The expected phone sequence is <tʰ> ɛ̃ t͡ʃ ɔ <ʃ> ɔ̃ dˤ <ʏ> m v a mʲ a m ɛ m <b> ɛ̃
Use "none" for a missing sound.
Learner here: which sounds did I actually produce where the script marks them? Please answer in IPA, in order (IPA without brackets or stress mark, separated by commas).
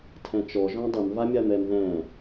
tʰ, ʒ, ʏ, ð